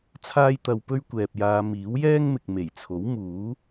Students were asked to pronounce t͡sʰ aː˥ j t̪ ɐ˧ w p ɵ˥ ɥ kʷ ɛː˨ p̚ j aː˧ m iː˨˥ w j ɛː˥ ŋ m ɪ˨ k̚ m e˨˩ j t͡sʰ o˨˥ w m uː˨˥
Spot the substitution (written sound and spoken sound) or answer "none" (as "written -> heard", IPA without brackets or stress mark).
none